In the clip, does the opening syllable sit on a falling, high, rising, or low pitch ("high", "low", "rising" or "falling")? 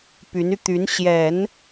rising